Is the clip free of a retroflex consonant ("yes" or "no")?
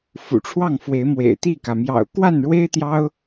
no